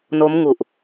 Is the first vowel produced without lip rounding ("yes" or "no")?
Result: no